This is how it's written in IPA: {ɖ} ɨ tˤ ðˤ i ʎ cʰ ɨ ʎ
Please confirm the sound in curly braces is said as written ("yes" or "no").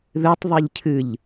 no